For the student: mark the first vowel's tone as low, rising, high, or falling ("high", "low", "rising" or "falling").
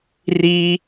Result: high